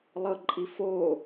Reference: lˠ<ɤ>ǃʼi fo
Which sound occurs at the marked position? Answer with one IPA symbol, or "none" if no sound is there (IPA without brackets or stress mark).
ɤ